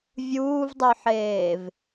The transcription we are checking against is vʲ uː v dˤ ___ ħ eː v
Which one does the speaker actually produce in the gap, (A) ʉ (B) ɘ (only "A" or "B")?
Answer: A